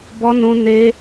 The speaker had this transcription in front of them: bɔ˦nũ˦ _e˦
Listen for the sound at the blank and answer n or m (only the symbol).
n